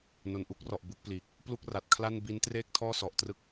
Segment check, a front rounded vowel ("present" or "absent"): absent